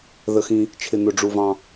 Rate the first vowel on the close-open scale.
mid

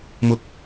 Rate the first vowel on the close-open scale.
close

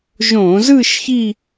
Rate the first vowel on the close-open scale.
mid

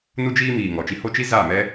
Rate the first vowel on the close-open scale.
close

